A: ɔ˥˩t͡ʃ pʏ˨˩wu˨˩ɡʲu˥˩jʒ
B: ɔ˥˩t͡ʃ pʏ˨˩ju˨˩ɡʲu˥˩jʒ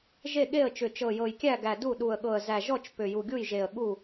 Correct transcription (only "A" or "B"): B